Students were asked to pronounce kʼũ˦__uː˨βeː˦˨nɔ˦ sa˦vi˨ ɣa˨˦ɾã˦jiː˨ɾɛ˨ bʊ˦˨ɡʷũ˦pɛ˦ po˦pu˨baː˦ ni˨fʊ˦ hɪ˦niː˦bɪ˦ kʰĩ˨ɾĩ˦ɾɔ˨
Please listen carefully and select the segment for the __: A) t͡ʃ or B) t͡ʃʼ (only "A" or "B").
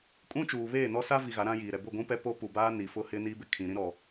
A